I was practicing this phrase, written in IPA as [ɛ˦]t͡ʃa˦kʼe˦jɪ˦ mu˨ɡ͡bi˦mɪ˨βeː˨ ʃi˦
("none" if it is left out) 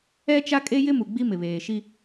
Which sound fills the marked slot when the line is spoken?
ɛ˦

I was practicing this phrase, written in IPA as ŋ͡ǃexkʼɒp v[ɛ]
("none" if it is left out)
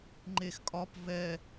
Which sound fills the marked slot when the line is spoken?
ɛ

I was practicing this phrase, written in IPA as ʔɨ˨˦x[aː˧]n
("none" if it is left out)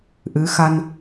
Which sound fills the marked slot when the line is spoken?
a˧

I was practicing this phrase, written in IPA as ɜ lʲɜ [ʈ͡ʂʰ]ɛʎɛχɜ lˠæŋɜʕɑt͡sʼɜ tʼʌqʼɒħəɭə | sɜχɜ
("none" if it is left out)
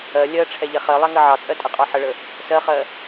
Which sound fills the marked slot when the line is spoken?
ʈ͡ʂʰ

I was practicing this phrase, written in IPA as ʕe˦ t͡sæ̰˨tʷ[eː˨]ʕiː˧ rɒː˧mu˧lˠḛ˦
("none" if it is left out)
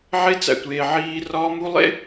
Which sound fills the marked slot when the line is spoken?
eː˨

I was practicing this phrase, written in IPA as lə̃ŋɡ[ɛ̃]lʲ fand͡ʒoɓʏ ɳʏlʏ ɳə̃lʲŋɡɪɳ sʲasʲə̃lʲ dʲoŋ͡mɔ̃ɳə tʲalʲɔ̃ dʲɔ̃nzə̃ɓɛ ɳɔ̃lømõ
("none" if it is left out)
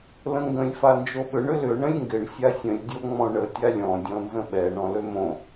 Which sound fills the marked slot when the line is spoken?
ə̃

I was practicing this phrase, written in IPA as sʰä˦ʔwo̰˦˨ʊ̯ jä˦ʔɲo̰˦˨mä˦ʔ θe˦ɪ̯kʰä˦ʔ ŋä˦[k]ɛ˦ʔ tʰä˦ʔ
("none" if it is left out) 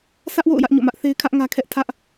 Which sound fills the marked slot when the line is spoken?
kʰ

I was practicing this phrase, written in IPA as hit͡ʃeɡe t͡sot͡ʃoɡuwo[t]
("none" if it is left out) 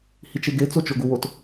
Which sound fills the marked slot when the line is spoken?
t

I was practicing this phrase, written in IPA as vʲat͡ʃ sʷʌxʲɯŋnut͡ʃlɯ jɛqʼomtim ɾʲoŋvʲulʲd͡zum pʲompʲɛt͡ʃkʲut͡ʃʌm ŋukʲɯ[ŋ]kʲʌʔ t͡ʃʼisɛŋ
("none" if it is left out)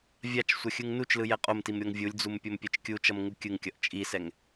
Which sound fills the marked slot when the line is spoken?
ŋ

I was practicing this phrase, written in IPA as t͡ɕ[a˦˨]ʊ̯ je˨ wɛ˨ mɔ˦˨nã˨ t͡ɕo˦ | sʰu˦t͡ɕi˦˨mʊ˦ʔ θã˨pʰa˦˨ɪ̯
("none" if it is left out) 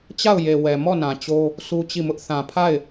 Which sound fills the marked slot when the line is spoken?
a˦˨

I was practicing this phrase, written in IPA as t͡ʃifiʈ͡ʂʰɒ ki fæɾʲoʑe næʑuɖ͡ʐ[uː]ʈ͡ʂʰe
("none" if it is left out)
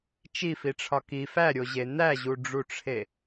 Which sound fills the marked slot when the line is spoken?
u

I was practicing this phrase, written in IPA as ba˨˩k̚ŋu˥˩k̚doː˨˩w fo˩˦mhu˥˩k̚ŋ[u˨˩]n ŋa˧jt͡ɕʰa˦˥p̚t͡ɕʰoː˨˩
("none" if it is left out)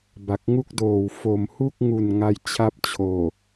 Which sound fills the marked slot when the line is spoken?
u˨˩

